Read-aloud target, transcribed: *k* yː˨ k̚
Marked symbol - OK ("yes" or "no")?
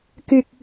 yes